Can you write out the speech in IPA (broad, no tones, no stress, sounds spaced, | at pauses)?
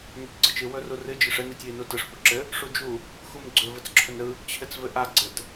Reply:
n a tʲ ɡ͡ǀ ɯ t͡ʃ ɨ w ɵ r u r ɨ d͡ʒ ɯ ʂ ɘ n i tʲ w i n u t ɯ ʂ p ɵ ǁ ɘ | ʂ u d͡ʒ u | x u m ɡ͡ǀ ɵ v ɘ t͡s ǁʰ ɵ n ɾ ɯ | t͡ɕʰ ɘ t͡s v ɘ ʔ a ɡ͡ǀ ɘ t